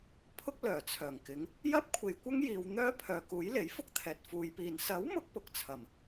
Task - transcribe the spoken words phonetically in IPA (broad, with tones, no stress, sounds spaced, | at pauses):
pʰ ʊ˥ k̚ l œː˨˩ t͡sʰ œː˨˩ ŋ k ɪ˨˥ ŋ | j ɐ˥ p̚ kʷʰ e˨ j kʷ ɐ˥ ŋ j iː˨ w n̪ œː˥ pʰ œː˨ k uː˨˥ j l e˨˥ j f ʊ˥ k̚ t̪ʰ ɛː˨ t̚ f uː˨˧ j p iː˨ n s ɐ˨˥ w m ʊ˧ k̚ p ʊ˨ k̚ t͡sʰ ɐ˨˩ m